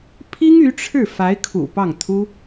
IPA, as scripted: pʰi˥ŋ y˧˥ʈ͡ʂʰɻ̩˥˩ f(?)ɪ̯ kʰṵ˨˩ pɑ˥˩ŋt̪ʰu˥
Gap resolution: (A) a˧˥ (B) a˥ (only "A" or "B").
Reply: A